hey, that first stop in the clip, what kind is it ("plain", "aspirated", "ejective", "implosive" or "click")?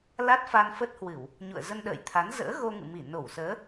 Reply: plain